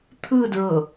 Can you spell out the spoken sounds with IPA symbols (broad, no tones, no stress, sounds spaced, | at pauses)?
t̪ʰ ɯ d ɹ ɤ